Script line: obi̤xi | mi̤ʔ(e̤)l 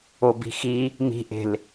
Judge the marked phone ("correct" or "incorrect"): correct